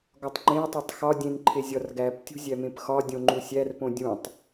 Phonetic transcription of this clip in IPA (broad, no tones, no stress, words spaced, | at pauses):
ɡɒtˤŋ͡ǃẽɐ̯tˤotˤ xɒ dʲẽnǃʰe zʲɒrɡæptʲṳ zʲæmẽpxɒdʲõ ŋ͡ǃusʲærpõ dʲũtˤ